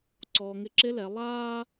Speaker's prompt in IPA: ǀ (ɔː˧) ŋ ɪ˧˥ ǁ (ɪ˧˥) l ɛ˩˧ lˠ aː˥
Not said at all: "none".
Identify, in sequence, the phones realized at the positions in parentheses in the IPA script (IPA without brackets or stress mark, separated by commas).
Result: ɔː˧, ɪ˧˥